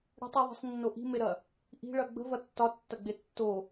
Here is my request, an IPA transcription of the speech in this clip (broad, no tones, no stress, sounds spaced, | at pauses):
ɽ ə̤ tˤ i ðˤ i̤ sˤ nː o ʔ i̤ m e ɾ ɐ | ʔ i̤ ɭ ɐ ɡ͡b ə̤ v ɐ tː ɒ tː ɐ ɡ͡b e tː o